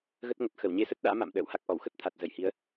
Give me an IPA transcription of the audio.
ɣ ə˦˥ t̚ ŋ ə˨˩ t̚ x ə˧˩ w ɲ e˧ s ə˦˥ t̚ ɗ a̰ː˧˥ m a̰˧˨ m ɗ ə̰ː˧˨ w h a˦˥ k̚ ʔ ɔ˧˩ w x ə˦˥ t̚ t̪ʰ a˨˩ t̚ z ə˧˩ j h i˨˦ ə̯

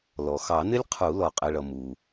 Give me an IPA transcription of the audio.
l ɔ˩ x ɑ˨˩˦ n ɪ˦˥ lʲ qʰ u˨˩˦ l ɔ˩ qʼ ɪ˩˧˩ ɭ ʌ˩ m u˩

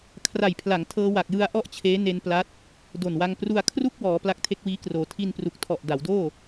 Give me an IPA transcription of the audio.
kʰ r a˨˩ j pʰ l a˩˦ ŋ tʰ ɤː˧ w a˨˩ k̚ j ɯ˧ a̯ ʔ ɔ˥˩ ʔ t͡ɕʰ eː˦˥ n e˧ n p l a˦˥ t̚ | d o˨˩ n w a˧ ŋ p r u˧ a̯ kʰ r u˥˩ k̚ w ɔː˩˦ p l a˦˥ k̚ tʰ e˦˥ k̚ w iː˦˥ k r oː˩˦ tʰ i˧ n p r u˨˩ k̚ tʰ ɔ˨˩ ʔ d a˩˦ w d oː˥˩

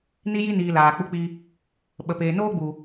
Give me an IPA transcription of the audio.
n i˦ j i˦ n iː˨ l aː˨ k͡p u˦ k͡p i˦ | ɓ ə˨ p eː˨ n oː˦ ɡ͡b u˨

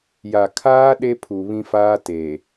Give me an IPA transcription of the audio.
j a˨ kʰ aː˦ ɗ e˦ pʰ u˨ β ĩ˦ f aː˦ t e˨

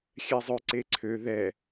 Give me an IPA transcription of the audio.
xʲ ɛ zˤ ø ǀ e ǀʰ ø ð ɛ

